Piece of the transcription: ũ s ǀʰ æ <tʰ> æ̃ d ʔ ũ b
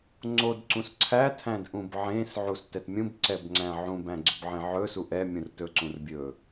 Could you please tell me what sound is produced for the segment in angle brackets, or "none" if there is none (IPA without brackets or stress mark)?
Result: tʰ